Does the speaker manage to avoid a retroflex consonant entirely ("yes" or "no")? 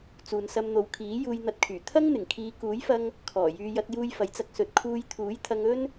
yes